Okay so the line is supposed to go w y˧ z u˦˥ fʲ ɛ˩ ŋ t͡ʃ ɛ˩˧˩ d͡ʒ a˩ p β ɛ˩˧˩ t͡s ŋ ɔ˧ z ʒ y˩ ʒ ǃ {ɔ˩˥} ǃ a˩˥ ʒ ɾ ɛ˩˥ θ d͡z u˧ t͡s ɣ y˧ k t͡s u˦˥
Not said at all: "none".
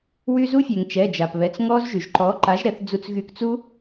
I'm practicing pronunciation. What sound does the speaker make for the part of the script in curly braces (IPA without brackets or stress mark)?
ɔ˩˥